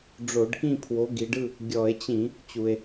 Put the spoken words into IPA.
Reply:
ɖ͡ʐ o˧˩˧ ɖ k ĩ˥˨ pʰ w o˨˥ ɡ i˩˧ ɖ ɯ˥˨ | ɡʲ ɔ˧˩˧ e̯ t͡ɕ ĩ˧˩˧ | t͡ɕ u˩ e̯

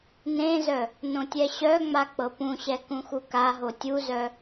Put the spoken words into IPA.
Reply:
n ẽ z œ | n õ tʲ ɛ ɕ œ ŋ͡m a k͡p ɤ p ũ ɕ ɛ k ũ x u k a ɦ o tʲ u z œ

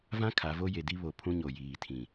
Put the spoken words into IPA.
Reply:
v ã˦ kʰ a˨˦ v o˦ j e˨ d i˦ β o˨ pʰ ũ˦ ɲ o˨ j iː˨ tʰ ĩ˨

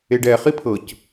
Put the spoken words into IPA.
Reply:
e ɖ ɛ χ i pʰ ɤ c

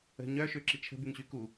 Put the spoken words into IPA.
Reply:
ə̤ ɲ œ ʃ ø ǁ i t͡ʃʰ ə̤ b y ŋ ɕ y k u

